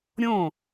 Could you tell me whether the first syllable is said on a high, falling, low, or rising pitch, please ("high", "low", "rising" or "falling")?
falling